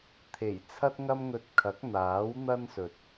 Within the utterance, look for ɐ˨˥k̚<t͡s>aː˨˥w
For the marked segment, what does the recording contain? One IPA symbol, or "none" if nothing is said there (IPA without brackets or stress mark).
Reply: n̪